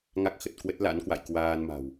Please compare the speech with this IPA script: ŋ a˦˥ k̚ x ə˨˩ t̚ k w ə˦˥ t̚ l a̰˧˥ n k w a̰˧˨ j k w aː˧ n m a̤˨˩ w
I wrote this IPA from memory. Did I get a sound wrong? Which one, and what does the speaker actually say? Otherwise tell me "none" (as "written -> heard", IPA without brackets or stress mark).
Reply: none